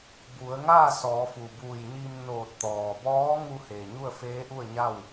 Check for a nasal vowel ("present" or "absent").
absent